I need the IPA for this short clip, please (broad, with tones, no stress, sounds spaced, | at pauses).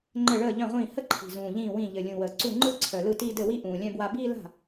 ŋ͡ǃ ɘ˥˩ ɭ əː˥˩ ʎ œ̃˥˩ ʁʷ ĩː˥˩ h ə˥˧ ǃʰ i̤˨˩ z ũː˨˩ ʎ ĩː˥˩ w ĩ˥˩ ʎ ɘ˨˩ lʲ ũ˨˩ w əː˨˩ ǀ u˥˩ ŋ͡ǃ ɯ˥˧ ǀʰ œ˨˩ l ɯ˥˩ t iː˥˧ d ɘ˥˩ w i˥˧ ʔ ũː˨˩ lʲ œ̃˥˧ b w a˥˧ b iː˥˧ l a̤˥˩